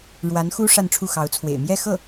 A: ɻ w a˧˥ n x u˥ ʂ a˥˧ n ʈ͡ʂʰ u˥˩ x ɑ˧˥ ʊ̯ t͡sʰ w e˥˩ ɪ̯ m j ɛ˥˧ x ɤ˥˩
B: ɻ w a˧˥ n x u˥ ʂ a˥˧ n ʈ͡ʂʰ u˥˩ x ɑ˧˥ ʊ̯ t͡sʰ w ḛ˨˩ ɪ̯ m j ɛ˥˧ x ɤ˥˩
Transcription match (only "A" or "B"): B